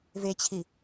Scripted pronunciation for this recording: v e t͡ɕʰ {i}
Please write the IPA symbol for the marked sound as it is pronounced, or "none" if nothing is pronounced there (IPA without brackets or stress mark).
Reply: i